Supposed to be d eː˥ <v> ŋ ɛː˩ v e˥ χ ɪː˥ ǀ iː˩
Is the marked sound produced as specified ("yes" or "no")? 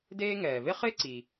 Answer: no